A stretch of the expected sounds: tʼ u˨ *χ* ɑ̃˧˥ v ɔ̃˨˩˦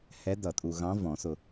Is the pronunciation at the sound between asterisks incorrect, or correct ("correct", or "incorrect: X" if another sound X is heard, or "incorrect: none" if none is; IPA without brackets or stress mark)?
incorrect: ɣ